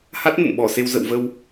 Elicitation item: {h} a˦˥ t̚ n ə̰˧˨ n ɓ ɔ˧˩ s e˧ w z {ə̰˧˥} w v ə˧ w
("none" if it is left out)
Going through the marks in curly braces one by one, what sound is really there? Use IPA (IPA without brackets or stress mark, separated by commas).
h, ə̰˧˨